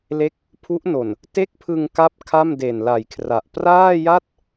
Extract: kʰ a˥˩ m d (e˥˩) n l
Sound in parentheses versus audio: incorrect: e˨˩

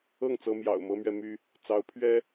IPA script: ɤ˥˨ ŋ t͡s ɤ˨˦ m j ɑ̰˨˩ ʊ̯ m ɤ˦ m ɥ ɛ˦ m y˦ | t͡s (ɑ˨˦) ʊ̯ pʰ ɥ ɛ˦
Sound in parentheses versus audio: correct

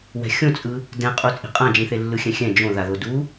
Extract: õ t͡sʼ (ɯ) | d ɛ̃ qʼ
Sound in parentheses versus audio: correct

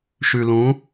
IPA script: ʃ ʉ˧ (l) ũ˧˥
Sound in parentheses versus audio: correct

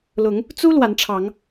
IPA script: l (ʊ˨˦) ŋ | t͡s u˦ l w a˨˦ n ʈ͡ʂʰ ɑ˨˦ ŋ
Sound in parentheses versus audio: correct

